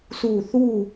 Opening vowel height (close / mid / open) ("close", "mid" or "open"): close